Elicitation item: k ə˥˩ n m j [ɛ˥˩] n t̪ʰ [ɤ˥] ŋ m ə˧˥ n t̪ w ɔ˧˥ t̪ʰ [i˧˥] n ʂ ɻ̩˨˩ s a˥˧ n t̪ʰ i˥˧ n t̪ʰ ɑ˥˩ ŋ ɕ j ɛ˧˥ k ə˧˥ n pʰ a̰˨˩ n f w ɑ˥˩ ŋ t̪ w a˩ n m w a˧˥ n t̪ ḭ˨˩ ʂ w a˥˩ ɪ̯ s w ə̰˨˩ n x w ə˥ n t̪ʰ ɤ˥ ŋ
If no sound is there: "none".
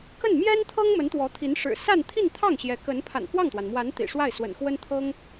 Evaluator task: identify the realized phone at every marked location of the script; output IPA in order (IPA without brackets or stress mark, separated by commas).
ɛ˥, ɤ˥, i˧˥